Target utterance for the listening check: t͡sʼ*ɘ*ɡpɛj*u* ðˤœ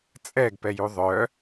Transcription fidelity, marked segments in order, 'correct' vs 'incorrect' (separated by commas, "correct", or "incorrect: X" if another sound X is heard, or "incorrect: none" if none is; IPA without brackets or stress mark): incorrect: ɛ, correct